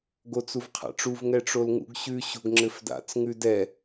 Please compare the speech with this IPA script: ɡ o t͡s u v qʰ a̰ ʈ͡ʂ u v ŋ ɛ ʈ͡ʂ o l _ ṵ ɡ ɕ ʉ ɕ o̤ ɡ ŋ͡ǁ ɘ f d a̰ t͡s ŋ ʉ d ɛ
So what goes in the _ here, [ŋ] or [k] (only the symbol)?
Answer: ŋ